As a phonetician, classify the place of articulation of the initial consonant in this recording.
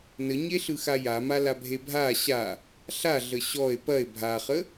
alveolar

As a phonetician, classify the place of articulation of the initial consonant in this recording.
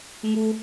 velar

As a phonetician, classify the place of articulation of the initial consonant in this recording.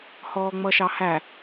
glottal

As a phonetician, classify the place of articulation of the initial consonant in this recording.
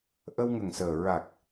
glottal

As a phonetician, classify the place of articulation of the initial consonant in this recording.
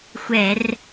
velar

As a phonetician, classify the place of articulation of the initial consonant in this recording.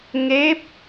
velar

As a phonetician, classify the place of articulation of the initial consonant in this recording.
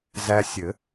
alveolar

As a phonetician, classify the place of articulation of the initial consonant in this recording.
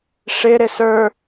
retroflex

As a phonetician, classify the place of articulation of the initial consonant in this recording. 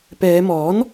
labial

